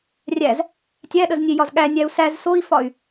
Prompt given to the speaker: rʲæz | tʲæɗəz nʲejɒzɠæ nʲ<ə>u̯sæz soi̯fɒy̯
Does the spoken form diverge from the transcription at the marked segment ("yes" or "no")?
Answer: yes